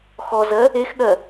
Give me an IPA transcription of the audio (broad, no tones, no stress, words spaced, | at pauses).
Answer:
xɔzɜ | exɠɜ